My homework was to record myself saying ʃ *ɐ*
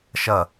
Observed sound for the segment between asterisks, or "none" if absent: ɐ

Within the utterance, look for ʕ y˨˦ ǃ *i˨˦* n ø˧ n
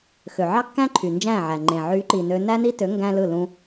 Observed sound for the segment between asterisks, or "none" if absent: i˨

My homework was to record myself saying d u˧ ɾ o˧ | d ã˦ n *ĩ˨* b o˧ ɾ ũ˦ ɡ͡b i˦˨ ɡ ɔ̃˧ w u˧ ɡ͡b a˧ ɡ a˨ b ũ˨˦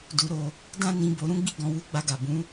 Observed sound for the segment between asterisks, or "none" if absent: ĩ˧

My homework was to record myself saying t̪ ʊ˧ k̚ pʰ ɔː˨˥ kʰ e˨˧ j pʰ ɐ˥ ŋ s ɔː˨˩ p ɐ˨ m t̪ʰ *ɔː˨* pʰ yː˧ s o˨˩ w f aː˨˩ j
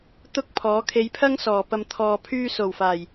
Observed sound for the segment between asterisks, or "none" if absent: ɔː˨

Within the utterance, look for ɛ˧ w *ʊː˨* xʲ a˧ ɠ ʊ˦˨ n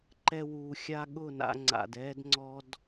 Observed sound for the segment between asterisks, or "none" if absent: uː˨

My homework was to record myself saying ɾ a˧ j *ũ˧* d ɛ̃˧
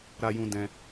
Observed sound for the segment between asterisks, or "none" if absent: ũ˧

